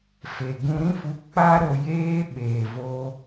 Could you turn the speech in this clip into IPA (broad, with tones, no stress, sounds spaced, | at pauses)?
f e˨ ɡ ũ˧ ɾ ĩ˦ f u˧ k͡p a˦ ɾ o˧ j eː˦ ɓ eː˨ v oː˧